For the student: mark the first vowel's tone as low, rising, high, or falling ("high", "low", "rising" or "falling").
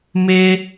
high